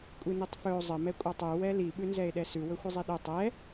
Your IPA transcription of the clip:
kʷʼinitˤfɵo̯ zˤə mɛkʷʼatˤʉ wɛli ɓʉnzɛe̯ɗɛsʉ wɵxʷəzˤiɗɵ tˤɛ

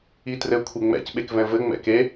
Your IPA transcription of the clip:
itrɘ kʷʰeŋ͡mɛ̰c ɓekvɛ̃vɘ ŋ͡mɛ̰ke

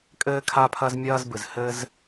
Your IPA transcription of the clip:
kʼɘː˧kʰa˧pʰɐ˧z mʲɐː˧zbɨ˩z hɘ˧z

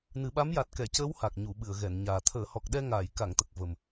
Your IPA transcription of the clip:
nɨ˨˩˦ɓa˧˥m ja˨˩t̚kɛ˨˩˨cəː˧˥w ha˨˩k̚ɲu˨˩˨ɓɨ˨˩˨ə̯ ɣɛ˨˩˨nɲaː˨˩ t̪ʰəː˨˩˨hɔ˨˩k̚ɗɛ˧ ŋaː˨˩˨jka˨˩˨ŋt̪ə˨˩k̚ və˨˩m

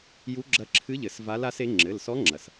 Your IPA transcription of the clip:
ju˧˥ɡ͡ǁɐ˧˥ǁʰɨ˧˥ʎɘ˨˩˦s va˧˥la˧˥se˧˥ ŋ͡ǁɘ˩˧˩lsɔ˧˥ŋ͡ǁɐ˩s

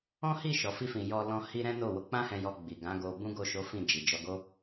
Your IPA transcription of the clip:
ɔ̃˦hi˦˨ ʃɔ˨˦fi˦fĩ˧ jɔ˧lɔ̃˧ hi˧ ɾɛ̃˦no˦˨wo˧ k͡pã˦hɛ̃˧jɔ˧ ɡ͡bi˨ɡã˨˦ɡo˧ bũ˦ɡo˦˨ʃo˨˦ fĩ˦˨d͡ʒi˨ d͡ʒɔ˧ɡo˦

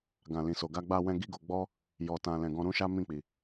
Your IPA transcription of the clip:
ɡã˨ lĩ˨so˨ ɡa˧ɡ͡ba˧wɛ̃˧ ɡi˦ɡo˧ ɡ͡bɔ˦ | jɔ˨ tã˨ lɛ̃˨ɡɔ̃˧ ɾũ˦ʃa˦ mĩ˦˨k͡pi˨

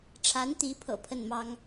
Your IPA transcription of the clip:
ʈ͡ʂʰa˧˥nt̪i˧˥pʰɤ̰˨˩ pʰə˥˩nmɑ˥ŋ

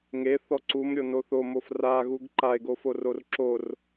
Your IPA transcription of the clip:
ŋeθɔ ǀumɾʲono θomof raɣuɡ ǃae̯ɡoforor ǁor

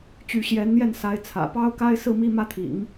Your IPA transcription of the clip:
t͡ɕy˧˥ɕjɛ˧˥nn̪jɛ˥˩n sa˧˥ɪ̯t͡sʰä̰˨˩ pɑ˥ʊ̯ka˥ɪ̯sɹ̩˥˧mi˥˧ mä˥˩t̪ʰḭ˨˩˦ŋ

